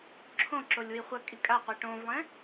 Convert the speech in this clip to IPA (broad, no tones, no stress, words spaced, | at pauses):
ǁʰõǁolʲwi χʷɐkʼi kʼaqʷi ʈõvlˠẽ